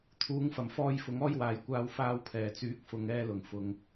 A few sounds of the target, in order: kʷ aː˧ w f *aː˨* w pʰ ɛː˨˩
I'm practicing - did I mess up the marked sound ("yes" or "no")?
yes